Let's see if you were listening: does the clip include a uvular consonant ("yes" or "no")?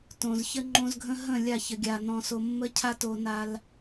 no